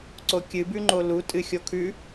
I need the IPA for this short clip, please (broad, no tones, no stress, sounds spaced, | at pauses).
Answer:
ǀ o kʲ ɨ b ʉ ŋ͡ǃ o l u tʼ ɨ xʲ o kʰ ʉ